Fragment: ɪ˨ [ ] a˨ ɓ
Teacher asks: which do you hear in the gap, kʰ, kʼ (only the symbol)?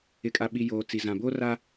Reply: kʼ